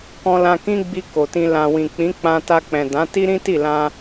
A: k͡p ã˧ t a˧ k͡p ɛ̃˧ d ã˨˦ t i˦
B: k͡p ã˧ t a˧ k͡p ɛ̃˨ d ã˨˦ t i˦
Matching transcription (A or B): B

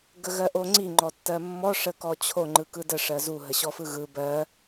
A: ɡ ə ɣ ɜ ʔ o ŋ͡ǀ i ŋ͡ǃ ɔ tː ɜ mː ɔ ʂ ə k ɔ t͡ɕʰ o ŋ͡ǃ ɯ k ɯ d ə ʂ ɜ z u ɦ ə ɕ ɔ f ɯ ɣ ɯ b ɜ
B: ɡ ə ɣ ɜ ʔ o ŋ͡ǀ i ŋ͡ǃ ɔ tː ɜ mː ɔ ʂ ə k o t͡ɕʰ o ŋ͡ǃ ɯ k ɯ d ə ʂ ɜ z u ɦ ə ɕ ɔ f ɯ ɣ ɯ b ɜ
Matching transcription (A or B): A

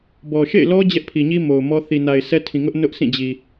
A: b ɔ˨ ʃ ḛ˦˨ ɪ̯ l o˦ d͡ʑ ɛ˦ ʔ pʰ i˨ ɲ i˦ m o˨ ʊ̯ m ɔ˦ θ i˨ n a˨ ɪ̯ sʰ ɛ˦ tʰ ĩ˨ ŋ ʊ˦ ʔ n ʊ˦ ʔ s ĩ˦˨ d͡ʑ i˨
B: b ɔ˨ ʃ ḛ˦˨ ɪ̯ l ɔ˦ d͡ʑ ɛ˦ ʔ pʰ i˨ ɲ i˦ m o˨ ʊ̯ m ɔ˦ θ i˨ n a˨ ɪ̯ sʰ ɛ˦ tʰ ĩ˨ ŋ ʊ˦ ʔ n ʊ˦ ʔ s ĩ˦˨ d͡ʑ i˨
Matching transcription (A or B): B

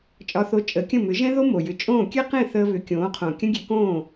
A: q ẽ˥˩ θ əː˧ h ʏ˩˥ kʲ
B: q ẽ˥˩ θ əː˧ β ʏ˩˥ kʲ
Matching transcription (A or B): B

